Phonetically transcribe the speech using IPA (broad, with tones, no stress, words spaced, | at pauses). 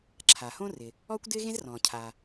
ǁʰa˩hõ˥rɪ˩ | ɔː˥kʷdɪː˥ɣẽ˥zrɔ̃ː˩ cʰaː˩